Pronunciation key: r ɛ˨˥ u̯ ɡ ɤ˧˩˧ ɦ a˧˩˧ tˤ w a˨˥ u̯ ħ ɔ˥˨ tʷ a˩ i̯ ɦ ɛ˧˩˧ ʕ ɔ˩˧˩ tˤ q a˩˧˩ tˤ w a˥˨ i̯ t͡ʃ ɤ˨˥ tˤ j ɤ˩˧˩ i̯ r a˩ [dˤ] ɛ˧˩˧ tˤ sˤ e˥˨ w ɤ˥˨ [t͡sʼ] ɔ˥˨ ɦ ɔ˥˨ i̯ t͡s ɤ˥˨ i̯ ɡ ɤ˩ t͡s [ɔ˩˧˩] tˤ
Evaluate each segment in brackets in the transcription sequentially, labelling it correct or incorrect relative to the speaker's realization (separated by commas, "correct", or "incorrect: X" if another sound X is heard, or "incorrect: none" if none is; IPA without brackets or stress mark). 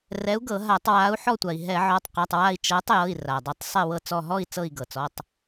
correct, incorrect: t͡s, correct